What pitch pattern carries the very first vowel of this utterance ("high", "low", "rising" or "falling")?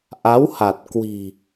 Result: rising